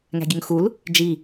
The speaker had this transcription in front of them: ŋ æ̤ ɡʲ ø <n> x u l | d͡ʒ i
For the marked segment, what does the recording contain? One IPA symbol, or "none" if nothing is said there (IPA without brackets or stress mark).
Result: ŋ